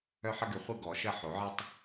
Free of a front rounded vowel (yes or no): no